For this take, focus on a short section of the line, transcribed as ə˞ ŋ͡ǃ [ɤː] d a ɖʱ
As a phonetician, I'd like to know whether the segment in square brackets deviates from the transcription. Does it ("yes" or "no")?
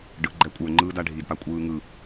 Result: yes